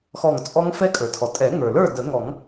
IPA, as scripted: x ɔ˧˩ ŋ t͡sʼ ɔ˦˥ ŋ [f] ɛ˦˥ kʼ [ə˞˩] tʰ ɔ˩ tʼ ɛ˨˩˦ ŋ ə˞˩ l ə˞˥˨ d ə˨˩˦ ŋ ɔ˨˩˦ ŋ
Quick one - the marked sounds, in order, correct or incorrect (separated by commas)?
correct, correct